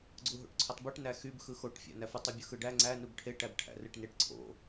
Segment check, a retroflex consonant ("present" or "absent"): present